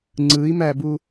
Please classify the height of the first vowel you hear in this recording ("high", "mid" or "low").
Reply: high